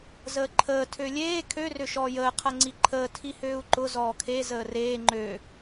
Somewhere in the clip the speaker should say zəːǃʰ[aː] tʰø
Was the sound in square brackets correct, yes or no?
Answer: no